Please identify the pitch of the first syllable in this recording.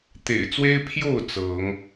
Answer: low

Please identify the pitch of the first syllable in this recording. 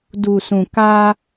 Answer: low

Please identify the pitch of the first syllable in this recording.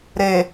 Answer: low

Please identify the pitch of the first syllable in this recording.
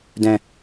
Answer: low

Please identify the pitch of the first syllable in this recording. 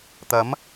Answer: rising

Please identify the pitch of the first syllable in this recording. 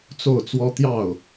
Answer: falling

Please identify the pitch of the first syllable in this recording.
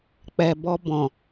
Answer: low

